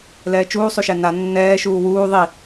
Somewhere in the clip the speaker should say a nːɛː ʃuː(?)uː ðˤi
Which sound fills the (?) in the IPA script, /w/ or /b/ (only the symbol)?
w